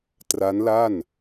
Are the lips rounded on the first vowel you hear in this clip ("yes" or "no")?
no